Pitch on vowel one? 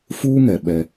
high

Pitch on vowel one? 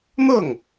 falling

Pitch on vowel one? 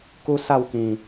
high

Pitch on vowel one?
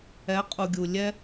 rising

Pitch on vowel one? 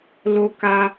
high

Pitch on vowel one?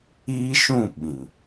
high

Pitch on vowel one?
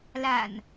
low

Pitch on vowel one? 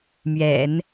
low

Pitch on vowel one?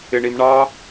low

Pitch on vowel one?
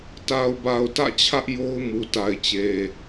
low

